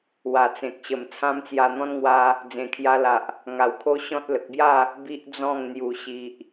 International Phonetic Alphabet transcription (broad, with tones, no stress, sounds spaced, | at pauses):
w a˨˩ t͡s ẽ˨ k̚ ɕ ə˨˩ m t͡sʰ ã˦ m t͡s j a˧ n̪ ɔ̃˦ n ŋ w a˧ | d͡z ẽ˨˩ kʰ j a˧ l a˨ ʔ | ŋ a˨˩ w kʰ o˦ ɕ ɔ̃˦ t̚ l ə˨ k̚ b j a˥˧ | b i˦ ʔ d͡z ɔ̃˥˧ ŋ n̪ j u˨˩ ɕ i˨ ʔ